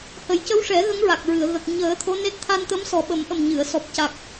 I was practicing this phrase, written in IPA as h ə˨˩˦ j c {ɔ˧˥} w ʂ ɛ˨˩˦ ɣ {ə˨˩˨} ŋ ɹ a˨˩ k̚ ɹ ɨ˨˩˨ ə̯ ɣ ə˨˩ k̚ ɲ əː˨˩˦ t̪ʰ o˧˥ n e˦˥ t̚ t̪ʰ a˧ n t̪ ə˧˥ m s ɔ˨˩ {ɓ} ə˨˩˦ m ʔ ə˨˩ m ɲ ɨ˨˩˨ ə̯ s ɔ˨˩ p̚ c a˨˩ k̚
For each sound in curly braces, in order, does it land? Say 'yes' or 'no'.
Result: no, no, yes

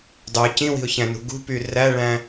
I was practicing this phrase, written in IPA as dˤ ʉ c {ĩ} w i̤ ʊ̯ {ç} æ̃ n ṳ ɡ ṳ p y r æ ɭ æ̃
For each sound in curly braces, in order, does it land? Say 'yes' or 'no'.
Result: yes, yes

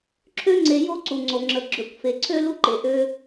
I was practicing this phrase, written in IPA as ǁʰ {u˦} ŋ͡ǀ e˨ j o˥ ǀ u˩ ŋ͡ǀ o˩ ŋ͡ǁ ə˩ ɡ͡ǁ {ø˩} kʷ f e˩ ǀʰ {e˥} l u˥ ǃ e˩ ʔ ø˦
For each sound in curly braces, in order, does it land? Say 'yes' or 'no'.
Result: no, yes, no

